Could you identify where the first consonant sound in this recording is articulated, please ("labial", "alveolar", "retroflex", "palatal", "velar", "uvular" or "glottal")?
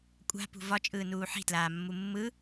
velar